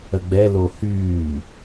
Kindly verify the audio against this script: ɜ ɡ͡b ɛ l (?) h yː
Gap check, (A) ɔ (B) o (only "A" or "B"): B